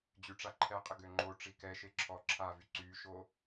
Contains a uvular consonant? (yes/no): yes